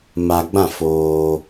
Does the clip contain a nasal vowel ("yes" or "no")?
yes